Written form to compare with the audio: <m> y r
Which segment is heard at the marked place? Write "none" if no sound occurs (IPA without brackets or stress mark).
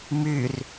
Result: m